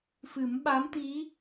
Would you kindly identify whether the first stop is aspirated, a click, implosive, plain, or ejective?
implosive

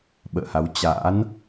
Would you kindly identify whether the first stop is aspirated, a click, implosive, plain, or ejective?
implosive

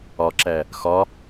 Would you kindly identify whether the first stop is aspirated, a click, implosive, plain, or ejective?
click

